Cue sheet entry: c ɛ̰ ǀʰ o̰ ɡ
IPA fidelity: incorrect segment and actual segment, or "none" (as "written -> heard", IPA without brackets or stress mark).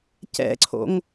ɡ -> ŋ